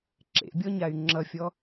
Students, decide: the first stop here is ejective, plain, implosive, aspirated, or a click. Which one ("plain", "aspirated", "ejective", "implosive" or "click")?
click